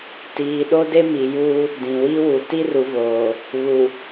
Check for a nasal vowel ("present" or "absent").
present